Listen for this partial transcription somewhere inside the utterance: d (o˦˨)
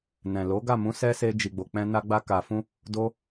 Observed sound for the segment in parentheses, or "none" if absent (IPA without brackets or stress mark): o˦